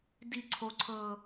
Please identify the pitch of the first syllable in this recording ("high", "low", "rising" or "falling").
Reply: falling